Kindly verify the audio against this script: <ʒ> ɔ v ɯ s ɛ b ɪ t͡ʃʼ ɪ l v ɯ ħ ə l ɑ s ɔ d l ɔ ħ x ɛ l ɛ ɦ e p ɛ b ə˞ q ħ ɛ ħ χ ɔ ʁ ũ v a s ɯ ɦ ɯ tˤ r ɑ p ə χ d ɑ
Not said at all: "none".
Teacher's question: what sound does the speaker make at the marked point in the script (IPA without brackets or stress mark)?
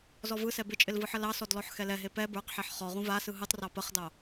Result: z